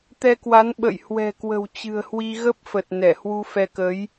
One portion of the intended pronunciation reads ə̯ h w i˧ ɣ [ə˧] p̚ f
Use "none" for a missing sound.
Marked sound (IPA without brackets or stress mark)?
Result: ə˦˥